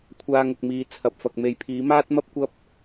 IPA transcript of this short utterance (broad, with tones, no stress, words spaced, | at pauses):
kʷʰaː˧ŋʊ˨k̚ miː˨t͡sʰɐ˨p̚fɐ˨k̚ me˨˧jpʰiː˨˥ maː˥t̚mɐ˥p̚ kʷɐ˥p̚